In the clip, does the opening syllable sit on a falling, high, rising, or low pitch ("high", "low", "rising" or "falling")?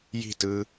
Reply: falling